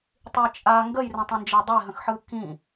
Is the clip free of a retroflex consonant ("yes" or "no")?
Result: yes